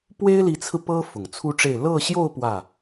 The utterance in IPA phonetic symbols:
pwe˥ɪ̯li˧˥t͡sʰɹ̩˧ pɤ˥ fʊ˨˩ŋt͡sʰu˥ʈ͡ʂe˥˧ɪ̯ lɤ˥˧ɕjo˥˧ʊ̯ pwä˥˩

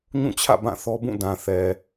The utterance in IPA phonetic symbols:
ɲũ˦˨t͡ɕʰä̰˦˨ bã˦˨θɔ˦bũ˦˨ dã˨θɛ˨

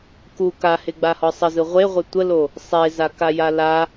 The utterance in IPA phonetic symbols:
ku kaheɡ͡bahɒ sˤəzɯ ʁʷeʁʷa tʷəlo | sˤezakaja la

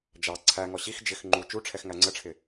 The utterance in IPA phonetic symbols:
d͡ʒɑ ǀʰæŋɔ ɕix d͡ʒɪx ŋ͡ǃu t͡ʃuʈ͡ʂʰɛx ŋæŋ͡ǀəʈ͡ʂʰɪ

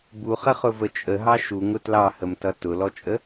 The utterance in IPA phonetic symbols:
buχəχʊvə t͡ʃʼəɦɑ ʃuŋʊ tlɑhəmtʌ tʊlɔt͡ʃʼə

